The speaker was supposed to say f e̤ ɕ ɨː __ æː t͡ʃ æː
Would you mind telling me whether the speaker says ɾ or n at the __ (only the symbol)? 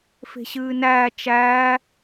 n